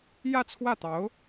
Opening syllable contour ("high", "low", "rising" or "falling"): falling